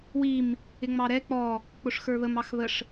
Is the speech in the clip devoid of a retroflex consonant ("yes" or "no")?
no